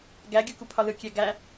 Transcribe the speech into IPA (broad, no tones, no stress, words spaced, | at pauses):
ɡæɡʲuku pʰɒlɯkʲæ ɡæ